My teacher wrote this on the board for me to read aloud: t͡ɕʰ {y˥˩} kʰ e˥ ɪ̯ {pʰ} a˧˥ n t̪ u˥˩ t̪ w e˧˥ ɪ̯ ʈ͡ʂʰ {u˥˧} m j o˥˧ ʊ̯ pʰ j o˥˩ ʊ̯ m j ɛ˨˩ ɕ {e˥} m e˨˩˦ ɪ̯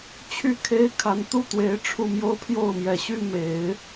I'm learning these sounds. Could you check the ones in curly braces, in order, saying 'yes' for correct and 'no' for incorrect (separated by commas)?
yes, no, yes, no